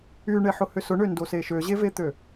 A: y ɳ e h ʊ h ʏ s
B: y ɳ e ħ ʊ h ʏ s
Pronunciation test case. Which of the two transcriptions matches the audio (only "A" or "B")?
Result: B